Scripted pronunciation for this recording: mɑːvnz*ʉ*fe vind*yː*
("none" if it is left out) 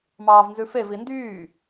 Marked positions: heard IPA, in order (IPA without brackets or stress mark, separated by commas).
ʉ, yː